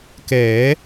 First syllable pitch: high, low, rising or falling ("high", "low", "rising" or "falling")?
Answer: rising